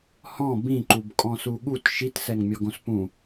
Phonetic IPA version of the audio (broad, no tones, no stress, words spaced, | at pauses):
hɔ̃ bĩǃubkʼɔ̃ suɠut ʃitsɛŋmʲɔɡõs pũ